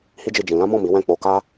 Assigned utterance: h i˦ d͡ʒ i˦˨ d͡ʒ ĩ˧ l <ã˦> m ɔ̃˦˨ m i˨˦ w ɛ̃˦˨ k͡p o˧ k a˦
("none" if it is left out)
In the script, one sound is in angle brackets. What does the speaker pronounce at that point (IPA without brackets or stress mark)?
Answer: ã˦